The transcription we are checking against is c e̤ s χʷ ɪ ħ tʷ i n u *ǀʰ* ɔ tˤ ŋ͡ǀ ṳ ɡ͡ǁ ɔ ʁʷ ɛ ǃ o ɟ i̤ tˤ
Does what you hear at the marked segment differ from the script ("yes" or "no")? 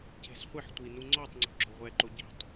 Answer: yes